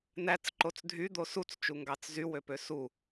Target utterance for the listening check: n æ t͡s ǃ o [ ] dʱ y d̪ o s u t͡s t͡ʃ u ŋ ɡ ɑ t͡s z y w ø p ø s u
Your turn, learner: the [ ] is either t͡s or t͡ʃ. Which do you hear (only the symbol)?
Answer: t͡s